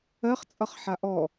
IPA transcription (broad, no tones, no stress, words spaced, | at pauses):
ɜχt͡sʼʌχ ħaʔɔ